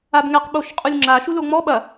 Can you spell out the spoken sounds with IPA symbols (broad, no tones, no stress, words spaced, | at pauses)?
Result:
abŋɛq ɓoʃqʼulʲŋ͡ǁa ʃuloŋ͡mɔ ɓɐ